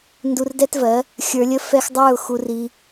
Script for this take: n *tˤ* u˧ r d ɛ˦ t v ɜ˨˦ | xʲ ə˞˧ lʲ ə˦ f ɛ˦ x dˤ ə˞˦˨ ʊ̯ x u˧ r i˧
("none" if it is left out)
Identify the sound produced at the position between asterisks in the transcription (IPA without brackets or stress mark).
d